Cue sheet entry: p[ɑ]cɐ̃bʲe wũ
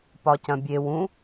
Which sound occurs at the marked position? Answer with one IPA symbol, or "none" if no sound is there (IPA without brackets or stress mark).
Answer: ɒ